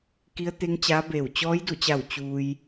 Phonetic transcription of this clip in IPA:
ki˧˥ə̯t̪e˧˥ŋt͡ɕaː˧˥beː˧˩w t͡ɕɔː˧˥jdu˧˩t͡ɕa˧˩w t͡ɕuː˧j

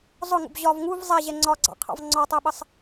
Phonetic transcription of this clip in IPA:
zˤʊŋṵb ʑɒv ŋuv zˤɛʑɛ ŋ͡ǀɒɡ͡ǀɑ̰qʰɑ̰v ŋ͡ǀɒtˤɜɓəsˤ

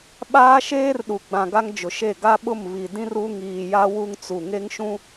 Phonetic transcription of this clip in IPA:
ɓaː˦ʃeː˦rɗu˨ɡ͡bã˨ ɡa˦ŋd͡ʒʊ˨ʃe˦˨ ɡa˦ɓʊ˦˨mβi˨dĩ˦r u˦ ŋiː˨ja˦ wu˦ŋt͡su˨ ŋe˦ŋʃũ˦

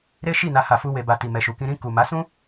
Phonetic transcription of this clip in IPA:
ɾe˦ʃi˦˨ na˧ha˨fu˧ we˨ba˨ ti˨mɛ˨ʃu˨kĩ˧ ɾĩ˧ ku˨ma˨˦sũ˦

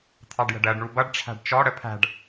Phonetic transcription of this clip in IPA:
t̪ʰɑɖjə̤ɖɜɖ ɳubʌɖ ʈ͡ʂʰæ̤ɖt͡ʃɔ ɽəpʰæ̤ɖ

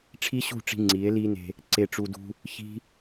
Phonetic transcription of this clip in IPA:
ʈ͡ʂʰi˦ɕṳ˦˨ʈ͡ʂi̤˧ ŋ͡ǀi˨˦e̯li˦ne̤˧ | ǀe˧ʈ͡ʂu˧dṳ˦ | çi̤˦

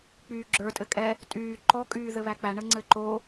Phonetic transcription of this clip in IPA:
k͡pyːɡ͡ǁə˞ tʼɘkʼɛ | tʼyː ǃɔ kʼyːðɘβæk͡pæ ɳəŋ͡ǀɘǃo

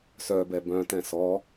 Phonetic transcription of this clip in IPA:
sœbɛ bœ̃tɛ̃ sɔ

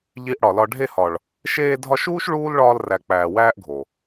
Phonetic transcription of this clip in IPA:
ʎi˧ʔ ɽɒ˨lɒ˧ ɖʱe˧hɒ˨ɭ | ʃeː˧dʱɒ˧ʃuː˦ʃ ɭuː˦lɭɒː˧l ræ˨ k͡pæː˨ wæː˦ʔɡʱo˨

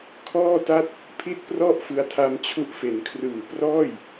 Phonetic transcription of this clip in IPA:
kʰɔː˥˩ta˥˩t̚ | pʰi˥˩t̚prɔ˥˩ʔfɯ˧a̯tʰa˧m t͡ɕʰu˦˥ʔfe˩˦n kʰrɯː˨˩prɔː˥˩j

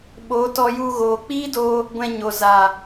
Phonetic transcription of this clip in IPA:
ɓo˨˦tɔ˧ju˧ ɣoː˨k͡piː˦doː˧ | ɡʷɛ̃˧ɲo˨za˨

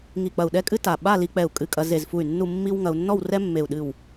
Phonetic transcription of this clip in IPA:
ŋi˧˩k͡pɐ˧˩u̯ ɗɛ˥kʼɨ˥ta˧˩ ɓa˥˧li˧k͡pɛ˧˩u̯ kʼɨ˧˩kʼɐ˧ ze˧˩zfu˧˩y̯ nːu˥˧ mːi˥w ŋɐ˧u̯nːɔ˥˧w rɛ˥mːe˧˩u̯ ɗɨ˧˩w

